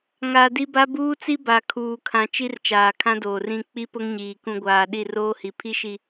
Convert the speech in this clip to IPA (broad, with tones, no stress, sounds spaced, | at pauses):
ŋ a˨ d i˦ b a˦ b uː˦ t͡s i˦ b a˨ kʰ uː˨ kʰ ã˨ t͡ʃ i˦ r t͡ʃ aː˨ kʰ ã˦ d oː˨ r ĩ˦˨ k͡p i˦ p ʊ˦ ŋ ɲ iː˨ k ũ˦ ɡʷ aː˨ ɗ i˦˨ r oː˦ h i˨ pʰ i˦ ʃ i˨